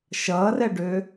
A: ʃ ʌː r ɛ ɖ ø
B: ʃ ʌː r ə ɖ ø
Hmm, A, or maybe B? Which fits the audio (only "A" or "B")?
A